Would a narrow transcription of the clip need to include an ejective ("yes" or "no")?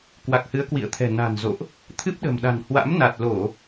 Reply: no